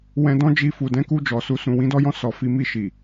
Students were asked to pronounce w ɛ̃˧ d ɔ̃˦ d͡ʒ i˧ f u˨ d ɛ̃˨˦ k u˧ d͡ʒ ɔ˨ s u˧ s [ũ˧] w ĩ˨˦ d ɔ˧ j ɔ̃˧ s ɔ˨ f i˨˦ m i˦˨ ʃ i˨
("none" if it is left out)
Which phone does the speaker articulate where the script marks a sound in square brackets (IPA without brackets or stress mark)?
ũ˨